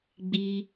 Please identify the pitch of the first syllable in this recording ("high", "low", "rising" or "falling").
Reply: low